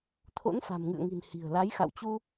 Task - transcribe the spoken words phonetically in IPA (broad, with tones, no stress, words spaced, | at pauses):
t̪ʰo̰˧˥nfa̤˨˩mŋɨ̰˧˨ə̯ŋi̤˨˩n hi̤˨˩ə̯la˨˦jxa̰˧˨wt͡ɕu˧